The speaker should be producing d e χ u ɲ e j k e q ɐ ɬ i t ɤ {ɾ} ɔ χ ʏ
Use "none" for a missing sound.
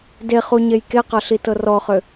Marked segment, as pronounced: r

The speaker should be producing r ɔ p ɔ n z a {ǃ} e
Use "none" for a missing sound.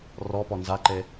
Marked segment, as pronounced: ǃ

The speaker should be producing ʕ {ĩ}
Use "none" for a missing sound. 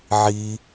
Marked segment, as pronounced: i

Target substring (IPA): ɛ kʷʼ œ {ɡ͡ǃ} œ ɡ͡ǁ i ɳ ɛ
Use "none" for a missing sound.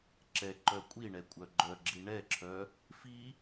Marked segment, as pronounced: ɡ͡ǃ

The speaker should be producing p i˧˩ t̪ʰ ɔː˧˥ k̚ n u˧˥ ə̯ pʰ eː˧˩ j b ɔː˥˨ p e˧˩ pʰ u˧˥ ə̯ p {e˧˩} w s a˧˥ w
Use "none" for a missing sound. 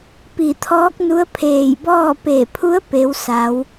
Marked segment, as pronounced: e˧˥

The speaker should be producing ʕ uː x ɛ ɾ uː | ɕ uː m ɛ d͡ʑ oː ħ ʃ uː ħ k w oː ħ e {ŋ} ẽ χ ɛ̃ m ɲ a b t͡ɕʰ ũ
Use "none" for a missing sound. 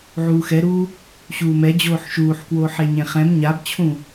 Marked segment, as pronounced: ɲ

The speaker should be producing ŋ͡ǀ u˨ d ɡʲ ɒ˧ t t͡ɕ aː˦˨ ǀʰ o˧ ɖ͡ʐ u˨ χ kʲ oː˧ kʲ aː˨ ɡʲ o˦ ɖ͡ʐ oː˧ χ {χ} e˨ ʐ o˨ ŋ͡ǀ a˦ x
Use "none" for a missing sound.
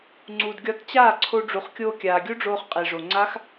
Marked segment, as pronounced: qʼ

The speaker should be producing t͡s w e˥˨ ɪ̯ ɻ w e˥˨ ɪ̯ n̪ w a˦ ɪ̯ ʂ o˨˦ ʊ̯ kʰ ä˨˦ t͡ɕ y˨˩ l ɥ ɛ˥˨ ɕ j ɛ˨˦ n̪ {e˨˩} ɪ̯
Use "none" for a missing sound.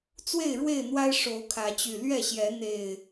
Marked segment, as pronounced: e˨˩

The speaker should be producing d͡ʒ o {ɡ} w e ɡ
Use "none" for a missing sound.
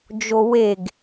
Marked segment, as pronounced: none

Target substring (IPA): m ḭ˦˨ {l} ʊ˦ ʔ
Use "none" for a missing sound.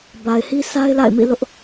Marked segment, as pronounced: l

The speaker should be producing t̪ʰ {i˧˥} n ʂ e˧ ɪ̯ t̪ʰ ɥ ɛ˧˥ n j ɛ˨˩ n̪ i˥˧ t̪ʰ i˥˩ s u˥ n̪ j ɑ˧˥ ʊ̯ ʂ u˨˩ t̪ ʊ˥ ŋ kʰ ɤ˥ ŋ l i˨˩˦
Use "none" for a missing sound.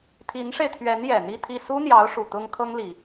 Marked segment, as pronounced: i˧˥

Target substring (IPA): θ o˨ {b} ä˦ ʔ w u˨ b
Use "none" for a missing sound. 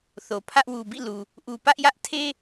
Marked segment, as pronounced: pʰ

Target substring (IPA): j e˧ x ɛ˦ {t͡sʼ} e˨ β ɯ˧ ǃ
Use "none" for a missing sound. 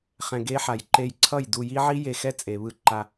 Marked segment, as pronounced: t͡sʼ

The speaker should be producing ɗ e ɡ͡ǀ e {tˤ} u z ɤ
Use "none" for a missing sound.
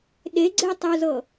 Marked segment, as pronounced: tˤ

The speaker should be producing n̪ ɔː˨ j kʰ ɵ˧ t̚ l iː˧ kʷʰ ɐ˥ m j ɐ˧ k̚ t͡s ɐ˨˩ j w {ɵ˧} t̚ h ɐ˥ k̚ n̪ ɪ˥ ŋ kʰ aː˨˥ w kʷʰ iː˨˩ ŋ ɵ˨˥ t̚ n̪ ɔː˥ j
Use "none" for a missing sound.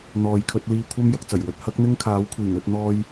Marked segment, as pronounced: ɵ˧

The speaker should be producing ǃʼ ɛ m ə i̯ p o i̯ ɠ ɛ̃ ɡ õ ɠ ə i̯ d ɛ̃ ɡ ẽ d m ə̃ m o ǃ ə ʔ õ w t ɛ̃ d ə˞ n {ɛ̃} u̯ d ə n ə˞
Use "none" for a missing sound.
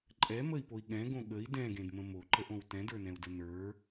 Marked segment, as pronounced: ɛ̃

